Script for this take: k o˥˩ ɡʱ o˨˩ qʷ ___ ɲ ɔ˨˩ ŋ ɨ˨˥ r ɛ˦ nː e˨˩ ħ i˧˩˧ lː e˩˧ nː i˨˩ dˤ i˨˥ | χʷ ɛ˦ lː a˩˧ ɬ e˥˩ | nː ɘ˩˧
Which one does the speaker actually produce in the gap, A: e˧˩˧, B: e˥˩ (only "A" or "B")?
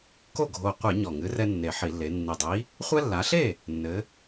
A